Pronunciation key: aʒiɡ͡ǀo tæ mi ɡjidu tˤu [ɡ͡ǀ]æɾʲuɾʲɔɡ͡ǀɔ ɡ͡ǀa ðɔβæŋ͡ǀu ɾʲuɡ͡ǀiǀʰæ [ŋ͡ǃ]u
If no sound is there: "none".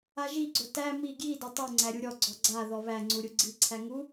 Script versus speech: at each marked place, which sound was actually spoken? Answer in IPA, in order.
ŋ͡ǀ, ŋ

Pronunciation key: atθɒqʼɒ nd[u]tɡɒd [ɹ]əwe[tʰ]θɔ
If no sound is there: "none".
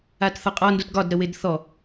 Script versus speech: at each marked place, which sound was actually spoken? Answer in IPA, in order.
u, ɾ, d

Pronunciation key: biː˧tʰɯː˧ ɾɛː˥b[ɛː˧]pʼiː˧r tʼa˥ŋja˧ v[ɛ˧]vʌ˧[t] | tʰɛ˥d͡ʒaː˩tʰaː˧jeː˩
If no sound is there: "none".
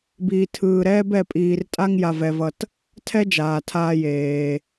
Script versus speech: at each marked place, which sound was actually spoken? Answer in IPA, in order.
ɛ˧, ɛ˧, t

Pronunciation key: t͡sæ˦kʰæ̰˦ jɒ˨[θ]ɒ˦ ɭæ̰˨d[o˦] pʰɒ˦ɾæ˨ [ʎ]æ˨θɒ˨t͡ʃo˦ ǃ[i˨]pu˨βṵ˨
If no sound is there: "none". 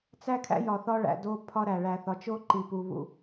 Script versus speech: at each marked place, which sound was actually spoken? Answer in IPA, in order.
θ, o˦, ɭ, i˨

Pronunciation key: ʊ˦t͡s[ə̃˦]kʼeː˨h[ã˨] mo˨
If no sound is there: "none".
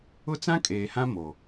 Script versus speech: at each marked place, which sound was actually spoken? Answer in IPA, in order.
ã˦, ã˦

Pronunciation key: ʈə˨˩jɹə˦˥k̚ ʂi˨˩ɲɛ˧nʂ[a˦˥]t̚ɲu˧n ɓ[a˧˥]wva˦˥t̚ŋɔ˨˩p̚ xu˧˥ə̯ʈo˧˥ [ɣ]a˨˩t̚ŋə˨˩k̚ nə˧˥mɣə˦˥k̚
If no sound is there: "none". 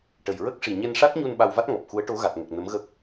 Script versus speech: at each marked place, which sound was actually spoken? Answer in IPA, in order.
a˦˥, a˧, ɣ

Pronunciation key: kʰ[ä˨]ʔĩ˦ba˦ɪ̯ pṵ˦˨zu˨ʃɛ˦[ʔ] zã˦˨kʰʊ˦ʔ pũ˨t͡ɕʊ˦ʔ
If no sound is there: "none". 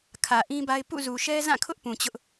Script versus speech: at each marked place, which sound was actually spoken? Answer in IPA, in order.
ä˨, none

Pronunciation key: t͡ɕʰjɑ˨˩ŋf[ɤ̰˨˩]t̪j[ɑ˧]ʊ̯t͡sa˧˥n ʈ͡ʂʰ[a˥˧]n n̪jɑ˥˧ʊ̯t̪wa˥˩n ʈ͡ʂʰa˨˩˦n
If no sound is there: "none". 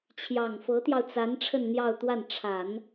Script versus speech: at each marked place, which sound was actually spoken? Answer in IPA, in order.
ɤ˧˥, ɑ˧, ə˥˧

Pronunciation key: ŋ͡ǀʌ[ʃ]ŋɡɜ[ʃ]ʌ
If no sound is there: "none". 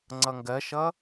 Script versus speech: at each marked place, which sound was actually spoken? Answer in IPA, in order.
none, ʃ

